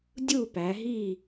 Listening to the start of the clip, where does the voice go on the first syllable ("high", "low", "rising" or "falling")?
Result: falling